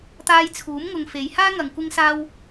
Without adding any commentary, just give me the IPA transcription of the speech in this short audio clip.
t̪aː˧jt͡sʰuː˨˥mŋʊ˨ŋ fe˨˧j haː˥ŋɐ˨ŋ kʷɪ˥ŋsaː˥w

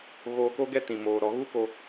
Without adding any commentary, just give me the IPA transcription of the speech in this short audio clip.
ɣoː˧ko˦ɡɛ˦ tĩ˨moː˨ɾɔ˨˦ ɣu˦ko˧

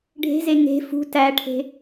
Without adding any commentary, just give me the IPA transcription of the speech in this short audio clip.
ɖʱe̤ze ŋe̤ fṳ tæʈʰe̤

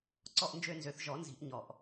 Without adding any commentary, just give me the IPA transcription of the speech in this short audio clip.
ǀɔ˥˧ʔnd͡ʒø˥˧nzø˨˩˦θ ʒɔ˨˩˦nzi̤˨˩˦ʔ ɲɔ˨˩ʔ

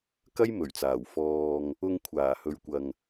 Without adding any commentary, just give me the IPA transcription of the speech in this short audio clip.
kɐ˥jmɵ˨˩ɥt͡saː˨˩w fɔː˨ŋ | ʊ˧ŋ kʷʰaː˨˩hɵ˨ɥkʷɐ˨ŋ

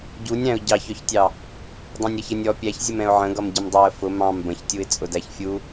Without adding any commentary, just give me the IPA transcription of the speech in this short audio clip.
ɟunʲɾæ̃ʊ̯ ɟɑçɔçtʲɑ | dˤæ̃nʲɾʌçənʲ ɔ pʲæçzʲəm ɛ̃ʊ̯ʕə̃ɡʌm ɟəmdˤɑə̯ fʊ mɑ̃m bə̃çtʲuɪ̯ t͡sʼʊdæçfʲu

